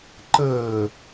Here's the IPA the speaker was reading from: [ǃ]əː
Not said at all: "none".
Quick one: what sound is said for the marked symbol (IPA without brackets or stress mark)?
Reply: ǃ